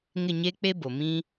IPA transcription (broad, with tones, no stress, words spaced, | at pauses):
ŋɪ˦˨ɲeː˦k͡pe˦bo˨ mĩ˦